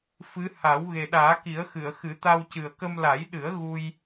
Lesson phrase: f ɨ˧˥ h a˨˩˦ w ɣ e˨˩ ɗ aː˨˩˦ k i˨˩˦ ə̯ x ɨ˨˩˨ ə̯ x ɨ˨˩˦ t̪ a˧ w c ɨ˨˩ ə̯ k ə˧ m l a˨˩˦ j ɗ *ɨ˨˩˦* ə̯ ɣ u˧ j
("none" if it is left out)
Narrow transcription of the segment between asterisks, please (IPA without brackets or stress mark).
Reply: ɨ˨˩˦